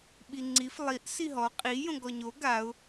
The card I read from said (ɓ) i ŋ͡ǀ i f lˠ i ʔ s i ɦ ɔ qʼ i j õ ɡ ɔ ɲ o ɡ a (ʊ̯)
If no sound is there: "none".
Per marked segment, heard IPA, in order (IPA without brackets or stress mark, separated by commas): ɓ, ʊ̯